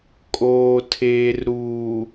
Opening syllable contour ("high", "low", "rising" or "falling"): low